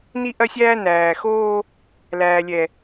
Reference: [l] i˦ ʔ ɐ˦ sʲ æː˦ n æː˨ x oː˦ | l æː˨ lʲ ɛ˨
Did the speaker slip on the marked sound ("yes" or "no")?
yes